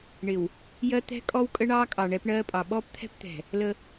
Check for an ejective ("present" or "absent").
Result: present